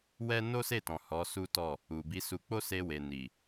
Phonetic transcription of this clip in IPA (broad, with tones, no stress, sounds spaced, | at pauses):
w ɛ˦ n o˦ s e˦˨ t ɔ̃˨ h ɔ˨˦ s u˦ t ɔ˦˨ | u˨ b i˨˦ s u˧ k͡p o˦ s e˧ w e˨ n i˨